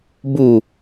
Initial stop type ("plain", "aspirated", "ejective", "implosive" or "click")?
plain